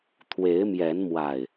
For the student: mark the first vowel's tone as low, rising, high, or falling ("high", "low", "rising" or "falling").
rising